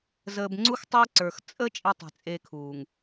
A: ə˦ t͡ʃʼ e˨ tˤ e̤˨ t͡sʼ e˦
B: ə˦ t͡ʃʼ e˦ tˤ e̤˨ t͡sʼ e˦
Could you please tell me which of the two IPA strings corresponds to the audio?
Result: B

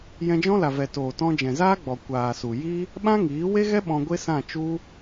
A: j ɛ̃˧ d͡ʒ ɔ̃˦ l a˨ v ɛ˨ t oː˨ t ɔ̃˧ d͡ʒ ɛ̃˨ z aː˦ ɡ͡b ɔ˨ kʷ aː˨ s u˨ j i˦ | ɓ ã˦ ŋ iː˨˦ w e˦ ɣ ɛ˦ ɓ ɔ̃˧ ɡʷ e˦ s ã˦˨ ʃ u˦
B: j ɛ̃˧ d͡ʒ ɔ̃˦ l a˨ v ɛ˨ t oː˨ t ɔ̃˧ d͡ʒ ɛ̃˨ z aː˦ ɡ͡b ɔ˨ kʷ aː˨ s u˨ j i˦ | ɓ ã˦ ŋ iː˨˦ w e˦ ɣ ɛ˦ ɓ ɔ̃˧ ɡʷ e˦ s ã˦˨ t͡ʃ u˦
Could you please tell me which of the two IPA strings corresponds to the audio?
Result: B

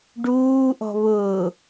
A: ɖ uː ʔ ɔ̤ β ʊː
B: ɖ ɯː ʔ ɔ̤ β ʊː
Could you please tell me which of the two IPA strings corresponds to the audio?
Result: A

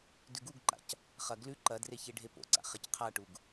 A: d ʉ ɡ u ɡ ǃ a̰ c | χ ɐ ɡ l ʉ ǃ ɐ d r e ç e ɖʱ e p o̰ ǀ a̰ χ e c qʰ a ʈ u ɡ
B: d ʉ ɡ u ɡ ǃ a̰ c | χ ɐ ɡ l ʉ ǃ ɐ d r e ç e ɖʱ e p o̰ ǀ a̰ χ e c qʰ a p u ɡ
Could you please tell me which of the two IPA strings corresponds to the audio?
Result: A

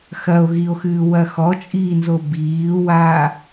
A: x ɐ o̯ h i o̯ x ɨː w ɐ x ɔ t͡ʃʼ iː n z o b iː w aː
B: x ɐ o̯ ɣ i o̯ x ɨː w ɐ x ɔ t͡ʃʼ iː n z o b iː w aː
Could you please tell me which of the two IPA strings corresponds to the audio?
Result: B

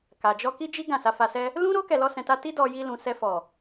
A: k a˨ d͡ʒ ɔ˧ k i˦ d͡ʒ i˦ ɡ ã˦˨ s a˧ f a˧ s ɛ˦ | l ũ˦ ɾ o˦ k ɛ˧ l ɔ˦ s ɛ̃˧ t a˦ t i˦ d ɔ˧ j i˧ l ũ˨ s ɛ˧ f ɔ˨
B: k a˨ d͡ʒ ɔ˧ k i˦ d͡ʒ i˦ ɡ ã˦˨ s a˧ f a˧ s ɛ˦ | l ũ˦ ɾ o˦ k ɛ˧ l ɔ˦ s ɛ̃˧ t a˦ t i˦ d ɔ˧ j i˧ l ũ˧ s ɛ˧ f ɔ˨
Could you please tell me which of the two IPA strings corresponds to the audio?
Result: A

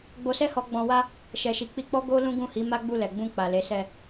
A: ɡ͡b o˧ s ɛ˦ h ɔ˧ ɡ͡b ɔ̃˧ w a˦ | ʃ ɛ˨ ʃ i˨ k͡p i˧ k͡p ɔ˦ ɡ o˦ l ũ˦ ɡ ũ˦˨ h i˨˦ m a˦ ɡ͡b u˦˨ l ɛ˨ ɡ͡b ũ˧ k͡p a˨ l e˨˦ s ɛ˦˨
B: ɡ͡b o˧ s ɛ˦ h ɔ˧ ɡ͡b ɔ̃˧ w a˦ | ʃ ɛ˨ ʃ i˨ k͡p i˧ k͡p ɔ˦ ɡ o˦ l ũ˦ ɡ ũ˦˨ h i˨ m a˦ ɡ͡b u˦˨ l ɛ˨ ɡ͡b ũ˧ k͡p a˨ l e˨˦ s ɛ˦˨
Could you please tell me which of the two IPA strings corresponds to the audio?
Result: A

